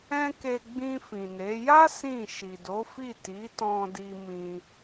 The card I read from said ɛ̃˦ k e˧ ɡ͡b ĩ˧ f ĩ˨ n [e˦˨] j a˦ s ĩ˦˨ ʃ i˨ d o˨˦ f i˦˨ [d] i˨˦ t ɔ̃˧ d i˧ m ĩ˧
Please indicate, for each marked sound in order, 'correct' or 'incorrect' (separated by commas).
incorrect, incorrect